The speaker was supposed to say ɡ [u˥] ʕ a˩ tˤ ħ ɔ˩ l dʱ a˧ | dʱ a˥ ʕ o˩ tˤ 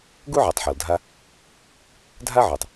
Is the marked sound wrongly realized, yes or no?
no